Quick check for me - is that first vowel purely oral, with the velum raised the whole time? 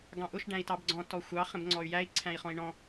no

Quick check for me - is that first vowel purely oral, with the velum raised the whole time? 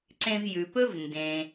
no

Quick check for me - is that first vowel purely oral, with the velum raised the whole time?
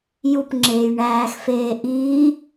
yes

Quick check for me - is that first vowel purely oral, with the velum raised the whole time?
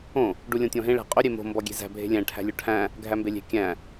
no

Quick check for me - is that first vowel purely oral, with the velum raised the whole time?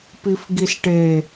yes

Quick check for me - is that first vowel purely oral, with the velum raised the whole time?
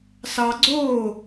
yes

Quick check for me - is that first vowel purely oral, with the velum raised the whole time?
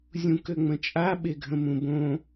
no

